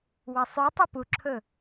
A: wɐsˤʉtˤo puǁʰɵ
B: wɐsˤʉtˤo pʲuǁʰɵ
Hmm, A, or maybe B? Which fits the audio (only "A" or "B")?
A